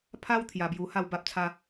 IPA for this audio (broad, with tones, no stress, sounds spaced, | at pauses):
pʰ a˦ w t̪ʰ j a˧ b j u˧ h a˥˧ w b a˦ p̚ t͡sʰ a˦